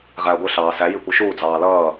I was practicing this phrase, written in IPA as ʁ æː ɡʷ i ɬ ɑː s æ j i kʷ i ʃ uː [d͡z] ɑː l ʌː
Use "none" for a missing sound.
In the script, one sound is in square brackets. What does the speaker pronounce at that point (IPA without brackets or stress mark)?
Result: d͡z